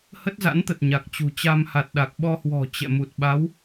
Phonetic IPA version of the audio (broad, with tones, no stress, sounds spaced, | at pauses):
h ə˦˥ t̚ z a̰˧˥ n t̪ ə˨˩ t̚ ɲ a˨˩ k̚ t͡ɕ ṳ˨˩ t͡ɕ a˧ m h a˨˩ t̚ ɗ a˨˩ k̚ ɓ ɔ˧ h w ɔ̤˨˩ t͡ɕ ɛ̰˧˨ m u˨˩ t̚ ɓ a˨˦ w